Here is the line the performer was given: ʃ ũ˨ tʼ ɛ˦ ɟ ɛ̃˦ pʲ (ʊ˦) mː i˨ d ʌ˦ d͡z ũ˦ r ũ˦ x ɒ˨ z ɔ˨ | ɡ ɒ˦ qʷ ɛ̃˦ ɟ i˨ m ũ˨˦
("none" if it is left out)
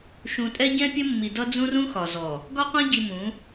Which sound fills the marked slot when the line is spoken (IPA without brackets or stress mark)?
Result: ʊ˦